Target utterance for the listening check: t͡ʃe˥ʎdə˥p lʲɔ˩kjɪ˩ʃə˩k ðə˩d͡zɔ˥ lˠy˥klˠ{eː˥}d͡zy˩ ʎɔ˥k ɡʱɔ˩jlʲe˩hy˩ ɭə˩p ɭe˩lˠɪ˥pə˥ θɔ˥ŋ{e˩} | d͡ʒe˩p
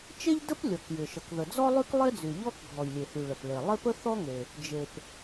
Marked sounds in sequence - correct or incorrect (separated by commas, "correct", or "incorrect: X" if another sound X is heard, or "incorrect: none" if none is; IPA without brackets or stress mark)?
incorrect: e˥, correct